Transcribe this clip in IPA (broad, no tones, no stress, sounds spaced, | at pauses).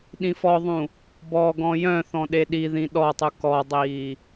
ɗ ĩ f ɔ ðˤ ũ | b ɔ ɡ ɔ̃ j œ̃ θ ɔ̃ ɗ e ɗ i ð ĩ ɗ ɔ tˤ u k ɔ dˤ iː